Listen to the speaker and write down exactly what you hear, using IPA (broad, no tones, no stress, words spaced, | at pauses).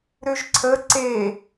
ɾøʒǀʰə ǀe